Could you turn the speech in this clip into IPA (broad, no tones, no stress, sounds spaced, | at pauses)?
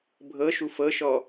bʱ ɤ ʃ u f ɤ ʃ ɔ